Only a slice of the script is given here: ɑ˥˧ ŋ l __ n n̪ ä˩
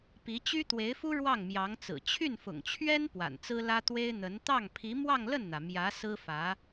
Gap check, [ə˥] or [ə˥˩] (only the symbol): ə˥˩